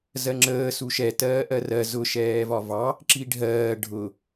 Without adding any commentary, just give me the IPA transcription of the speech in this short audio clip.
z ɜ ŋ͡ǁ əː s u ʃ ɛ t ɜː ʔ ɜ r ɜ z ʊ ʃ ɛː v ɒ v ɑ | ǁ i ɖʱ ɜː ɖʱ ʊ

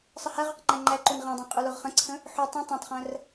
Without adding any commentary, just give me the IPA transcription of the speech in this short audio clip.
sˤ ə h æ ʁ o q ŋ͡ǃ æ ŋ͡ǃ æ ǃ u n ʁ æ̃ dˤ æ̃ qʼ u l o ʁ χ ə̃ ǀʰ ə̃ | ħ u tˤ ũ tˤ æ̃ tˤ χ æ̃ r

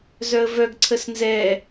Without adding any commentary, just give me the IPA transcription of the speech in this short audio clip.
z œ ə̯ v œ ɡ ǀʰ ə s n z ɛ

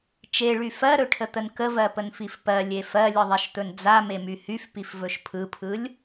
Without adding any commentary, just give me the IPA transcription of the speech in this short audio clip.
t͡ʃ e ɭ y f ɜ ɾ ɵ ʈʰ ə t̪ ə n k ə v ɜ p ə n f i f p ɜ lʲ e f ɜ lʲ ɯ ðˤ i ʃ t̪ ɵ n d͡z a m e m y h y f p i f v ɵ ʃ pʰ ɯ pʰ ɯ lʲ

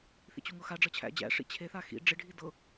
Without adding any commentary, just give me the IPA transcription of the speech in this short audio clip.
θ ḭ t͡ɕ u ŋ ɤ x a ɖ͡ʐ ɤ t͡ɕʰ æ̰ d͡ʑ æ̰ ʂ ḭ t͡ɕʰ e θ a x ḭ ɖ͡ʐ ɪ ɖʱ i d ɤ

